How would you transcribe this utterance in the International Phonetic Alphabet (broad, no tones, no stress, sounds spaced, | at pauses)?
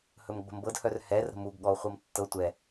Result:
h ɵ m ɡ͡b ə̤ m b ɤ d h œ r h ɛ r ɾ ə̤ m u ɡ ɠ ɔ o̯ χʷ ɤ m tː ɤ tʷ ɛ